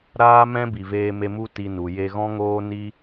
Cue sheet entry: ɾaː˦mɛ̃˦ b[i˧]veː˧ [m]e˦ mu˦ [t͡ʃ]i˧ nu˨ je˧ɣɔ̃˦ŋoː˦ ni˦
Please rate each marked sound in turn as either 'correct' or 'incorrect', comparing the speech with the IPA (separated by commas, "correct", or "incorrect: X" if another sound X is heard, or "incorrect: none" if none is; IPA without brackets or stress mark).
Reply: incorrect: i˨, correct, incorrect: t